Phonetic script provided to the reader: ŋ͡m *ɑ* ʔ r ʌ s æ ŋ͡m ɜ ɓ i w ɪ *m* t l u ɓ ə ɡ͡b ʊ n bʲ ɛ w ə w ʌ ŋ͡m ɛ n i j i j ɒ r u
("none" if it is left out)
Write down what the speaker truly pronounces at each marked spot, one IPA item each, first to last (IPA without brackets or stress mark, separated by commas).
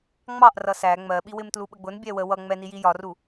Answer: ɑ, m